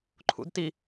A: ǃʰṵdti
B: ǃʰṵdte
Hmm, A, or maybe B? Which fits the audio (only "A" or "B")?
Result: A